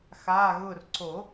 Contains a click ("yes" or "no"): yes